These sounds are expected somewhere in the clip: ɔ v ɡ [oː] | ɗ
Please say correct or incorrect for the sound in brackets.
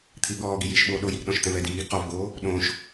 correct